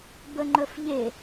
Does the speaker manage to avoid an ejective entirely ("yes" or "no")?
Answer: yes